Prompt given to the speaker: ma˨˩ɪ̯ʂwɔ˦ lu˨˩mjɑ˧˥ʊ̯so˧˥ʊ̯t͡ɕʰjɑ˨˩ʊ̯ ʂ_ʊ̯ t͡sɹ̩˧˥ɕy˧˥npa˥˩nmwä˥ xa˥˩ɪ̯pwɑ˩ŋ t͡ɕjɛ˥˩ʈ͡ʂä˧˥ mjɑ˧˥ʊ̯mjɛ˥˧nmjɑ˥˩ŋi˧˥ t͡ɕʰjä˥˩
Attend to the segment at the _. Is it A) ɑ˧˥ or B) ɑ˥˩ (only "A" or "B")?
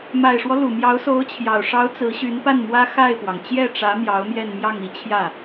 A